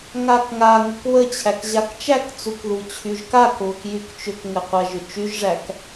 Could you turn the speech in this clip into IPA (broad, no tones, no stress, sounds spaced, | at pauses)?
ŋ a k ŋ a ŋ ə k β ə t͡ɕʰ æ k ʑ a k t͡ʃ æ k t͡s u k ð u t͡ɕʰ y ʒ k a k β ə k j y k t͡ʃ ʏ k ŋ ɘ qʷ a ʒ ʏ t͡ʃ y ʒ ʐ æ k